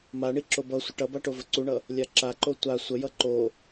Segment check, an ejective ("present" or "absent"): absent